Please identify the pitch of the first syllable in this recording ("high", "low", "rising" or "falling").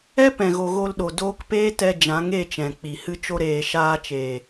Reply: high